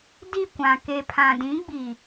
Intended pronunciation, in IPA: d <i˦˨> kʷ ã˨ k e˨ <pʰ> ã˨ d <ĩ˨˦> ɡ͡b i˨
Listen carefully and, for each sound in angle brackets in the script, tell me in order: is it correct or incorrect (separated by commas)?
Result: correct, correct, correct